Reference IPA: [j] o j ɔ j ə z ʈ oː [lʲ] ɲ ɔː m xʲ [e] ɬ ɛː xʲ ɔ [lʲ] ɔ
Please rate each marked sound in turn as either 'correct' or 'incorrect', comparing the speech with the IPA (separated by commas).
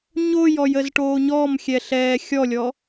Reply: incorrect, incorrect, incorrect, correct